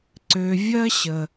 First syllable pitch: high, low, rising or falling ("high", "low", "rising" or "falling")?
low